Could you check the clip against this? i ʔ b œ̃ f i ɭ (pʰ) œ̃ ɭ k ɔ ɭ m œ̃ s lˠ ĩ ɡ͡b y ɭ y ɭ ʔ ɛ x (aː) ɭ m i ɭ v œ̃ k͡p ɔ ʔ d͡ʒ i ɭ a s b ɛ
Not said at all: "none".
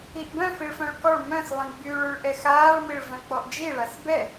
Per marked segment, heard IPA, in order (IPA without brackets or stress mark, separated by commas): f, aː